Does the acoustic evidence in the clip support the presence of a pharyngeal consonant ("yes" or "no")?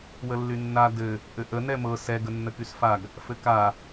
no